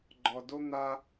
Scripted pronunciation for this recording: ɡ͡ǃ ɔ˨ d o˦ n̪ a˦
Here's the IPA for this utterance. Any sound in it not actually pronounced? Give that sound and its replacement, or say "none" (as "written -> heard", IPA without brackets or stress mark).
none